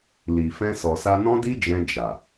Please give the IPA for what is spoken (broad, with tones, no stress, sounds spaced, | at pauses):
l i˨ f ɛ̃˧ s ɔ˨ s a˧ n ɔ̃˦ d i˦ d͡ʒ ɛ̃˧ d͡ʒ a˨